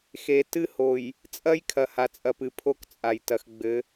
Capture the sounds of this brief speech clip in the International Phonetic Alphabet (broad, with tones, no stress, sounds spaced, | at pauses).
x e˨ t ɨ˦ h o˨ j | t͡sʼ ɐ˦ j kʰ ɐ˨ h a˨ t͡sʼ ɐ˨ p ɨ˨ pʰ o˦ k t͡sʼ a˨ j t ɐ˨ x ɡ͡b ɘ˨˦